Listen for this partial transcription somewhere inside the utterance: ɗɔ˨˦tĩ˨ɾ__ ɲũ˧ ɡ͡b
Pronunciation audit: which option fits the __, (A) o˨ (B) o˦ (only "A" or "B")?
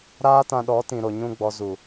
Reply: A